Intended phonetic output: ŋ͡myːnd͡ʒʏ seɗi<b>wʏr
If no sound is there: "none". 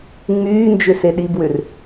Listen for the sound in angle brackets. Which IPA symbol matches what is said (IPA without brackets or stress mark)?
b